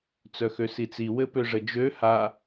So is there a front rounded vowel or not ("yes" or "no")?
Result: yes